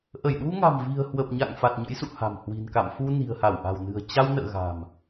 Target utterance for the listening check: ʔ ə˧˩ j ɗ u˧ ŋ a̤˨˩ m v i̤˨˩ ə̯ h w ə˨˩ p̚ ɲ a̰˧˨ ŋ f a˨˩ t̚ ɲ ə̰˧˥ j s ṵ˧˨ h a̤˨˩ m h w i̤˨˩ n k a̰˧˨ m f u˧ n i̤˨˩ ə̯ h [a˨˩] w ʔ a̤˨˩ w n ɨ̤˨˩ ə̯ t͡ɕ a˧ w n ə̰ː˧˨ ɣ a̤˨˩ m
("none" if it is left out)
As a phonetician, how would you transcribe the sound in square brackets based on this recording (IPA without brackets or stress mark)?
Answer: a˧˩